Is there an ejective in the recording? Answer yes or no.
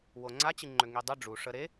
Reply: no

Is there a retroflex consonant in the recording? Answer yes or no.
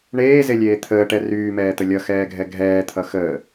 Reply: yes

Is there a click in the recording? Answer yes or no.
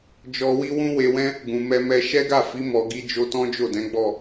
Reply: no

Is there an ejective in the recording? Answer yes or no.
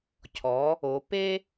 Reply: no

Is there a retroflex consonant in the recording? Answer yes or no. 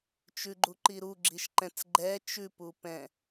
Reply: no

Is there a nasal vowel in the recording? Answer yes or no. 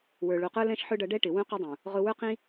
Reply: yes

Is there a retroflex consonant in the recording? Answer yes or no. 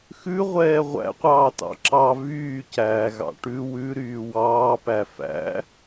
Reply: yes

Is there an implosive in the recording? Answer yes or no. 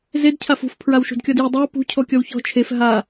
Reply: no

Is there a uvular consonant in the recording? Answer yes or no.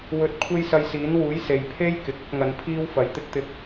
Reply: no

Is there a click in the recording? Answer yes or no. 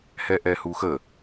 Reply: no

